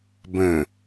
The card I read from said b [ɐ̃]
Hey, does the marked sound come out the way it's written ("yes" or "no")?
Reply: no